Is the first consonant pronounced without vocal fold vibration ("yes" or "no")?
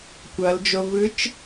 yes